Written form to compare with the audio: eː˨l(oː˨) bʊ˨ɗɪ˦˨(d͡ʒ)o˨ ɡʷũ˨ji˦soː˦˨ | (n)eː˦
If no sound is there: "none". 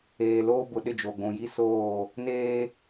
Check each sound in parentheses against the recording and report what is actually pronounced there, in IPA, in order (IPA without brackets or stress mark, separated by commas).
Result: oː˦, d͡ʒ, n